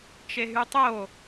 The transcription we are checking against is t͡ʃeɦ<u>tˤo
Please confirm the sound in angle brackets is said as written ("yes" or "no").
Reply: no